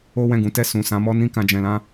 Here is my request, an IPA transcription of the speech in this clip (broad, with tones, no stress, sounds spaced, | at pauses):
o˦ w ɛ̃˦˨ ɡ ũ˨˦ t ɛ˦˨ s ũ˨ s ã˨˦ m ɔ˦ n ĩ˦ k ã˧ d͡ʒ ɛ̃˧ l ã˦